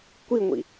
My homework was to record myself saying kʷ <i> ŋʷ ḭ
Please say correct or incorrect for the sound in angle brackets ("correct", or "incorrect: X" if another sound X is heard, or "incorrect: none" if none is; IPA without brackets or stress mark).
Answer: correct